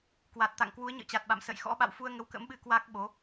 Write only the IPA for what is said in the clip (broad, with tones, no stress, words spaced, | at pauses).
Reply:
kwa˨˩t̚t̪a̰˧˨ŋ kwu˨˦ə̯ɲə̰ː˧˨t͡ɕa˨˩t̚ɓa̰˧˨m sə̰˧˨jxɔ̰˧˥ɓa̰˧˨w fu˧ə̯ ŋə˨˦wkə̰˧˥mɓɨ˧ kwa˦˥k̚ɓo˨˦